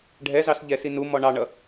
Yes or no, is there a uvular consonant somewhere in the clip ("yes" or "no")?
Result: no